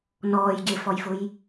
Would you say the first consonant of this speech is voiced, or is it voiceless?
voiced